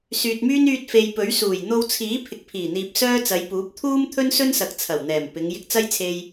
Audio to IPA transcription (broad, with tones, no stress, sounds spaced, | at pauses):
s yː˨ t̚ m yː˥ n yː˧ t̚ f e˨ j p ɵ˨˥ ɥ s uː˨˩ j n̪ o˧ w t͡sʰ iː˨˥ pʰ ɪ˨ k̚ pʰ iː˨˩ n̪ iː˨ p̚ s œː˥ t͡s ɐ˨˧ j p uː˨˥ p̚ t̪ʰ uː˥ m t̪ʰ ɵ˥ n s ɵ˥ n s ɐ˨ k̚ t͡sʰ ɐ˨˩ w n̪ ɛː˨˩ m p ɪ˨˧ ŋ j ɪ˧ k̚ t͡s ɐ˥ j t͡sʰ e˧ j